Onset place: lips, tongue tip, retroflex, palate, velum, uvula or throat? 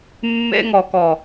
lips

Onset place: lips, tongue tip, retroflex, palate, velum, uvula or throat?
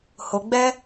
throat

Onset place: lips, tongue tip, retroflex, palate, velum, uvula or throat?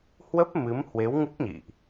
throat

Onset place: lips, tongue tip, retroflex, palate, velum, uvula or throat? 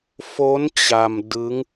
lips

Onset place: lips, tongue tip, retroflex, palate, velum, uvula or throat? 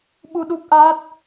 lips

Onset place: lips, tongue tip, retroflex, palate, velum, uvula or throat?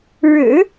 retroflex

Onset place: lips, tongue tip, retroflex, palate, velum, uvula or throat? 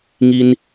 velum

